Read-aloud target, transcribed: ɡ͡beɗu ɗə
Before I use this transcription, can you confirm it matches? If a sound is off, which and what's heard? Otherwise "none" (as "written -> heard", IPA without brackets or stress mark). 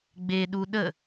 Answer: none